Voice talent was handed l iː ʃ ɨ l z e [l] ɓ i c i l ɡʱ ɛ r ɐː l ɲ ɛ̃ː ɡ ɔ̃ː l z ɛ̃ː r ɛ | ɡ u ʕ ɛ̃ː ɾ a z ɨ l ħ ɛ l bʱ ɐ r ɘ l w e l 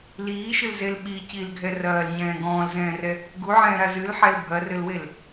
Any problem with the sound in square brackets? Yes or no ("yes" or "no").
no